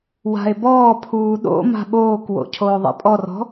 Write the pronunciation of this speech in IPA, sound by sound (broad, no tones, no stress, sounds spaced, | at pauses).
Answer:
w a̤ e̯ b ɔː pʰ uː ɗ o̰ m a̤ ɓ oː k w o̰ cʰ oː ðˤ ɛ̰ pʼ ɔ r ɔ̤